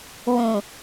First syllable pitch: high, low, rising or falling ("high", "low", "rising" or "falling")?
low